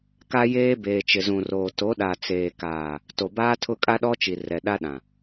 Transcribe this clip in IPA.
k a˦ j eː˦ b eː˨ t͡ʃ ɪ˨ z ũ˨ r oː˨ t o˨˦ ɗ a˨ t͡s eː˨ k aː˨ | t o˨ b aː˦ tʰ ʊ˦˨ kʼ a˦ ɗ ɔ˦ t͡ʃ i˨ r ɛ˨ ɗ a˦ ɗ ã˨

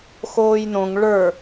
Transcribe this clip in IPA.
x oː j n õ ŋ ɭ ə˞

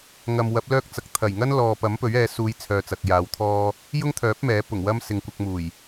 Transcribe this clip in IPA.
ŋ ɐ˨ m w ɐ˨˥ p̚ l œː˥ k̚ t͡s ɐ˨ k̚ t̪ʰ ɐ˨˩ j ŋ ɐ˥ n l ɔː˨ p ɐ˨˥ m p ɵ˨˥ ɥ ɛː˨˧ s uː˨˧ j t͡sʰ œː˨ t͡s ɐ˨ k̚ j aː˨˧ w t̪ʰ ɔː˥ | j ʊ˥ ŋ t̪ʰ œː˨˥ p̚ m ɛː˨˥ p ʊ˨˩ ŋ w ɐ˥ m s ɪ˨ ŋ kʷ ɐ˧ k̚ m uː˨˩ j

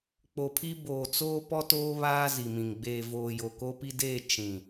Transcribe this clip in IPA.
k͡p o˨ pʰ i˦ b oː˨ t͡s oː˦ p ɔ˦ t oː˦ β aː˦ z i˨ m ĩ˨ ŋ ɡ͡b eː˨ v oː˨ j o˨ k o˦ p i˦ d eː˦˨ t͡ʃ ĩ˨

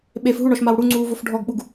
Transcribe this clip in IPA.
ɓ e f ɦ u ɳ ɔ ʃ m a w ɽ u ŋ͡ǀ uː v o f ɖʱ ɔ ɡ ɓ u ɡ

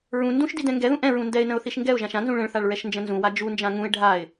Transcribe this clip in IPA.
ɹ ũ n d ũ ʃ d i d ɛ̃ ŋ ɡ ɛ ð ũ ʔ ɛ̃ ɹ ũ n d ɛ ɪ̯ n ə̃ ʊ̯ θ i ʃ ŋ ɡ ɛ ʊ̯ ʒ ã ʃ ã n z ũ ɭ ə̃ ɭ θ a ɭ ɹ ɛ ʃ n d͡ʒ ə̃ n z ũ w a d͡ʒ u n d͡ʒ ã ŋ ũ ɪ̯ ɖʱ a ɪ̯

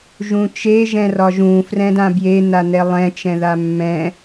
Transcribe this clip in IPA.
ʒ ũ t͡ʃ e ʒ ɛ̃ r ɒ ʒ ũ f r ɛ̃ d ã b j e n a n ɛ lˠ ɛ̃ t͡ʃ ɛ̃ ð a mː ɛ̃

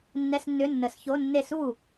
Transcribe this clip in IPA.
nː ɛ˧˥˧ s nː ʏ˧˥˧ nː ə˧˩˧ s ç o˧˥˧ nː e˥˩ s u˥˩

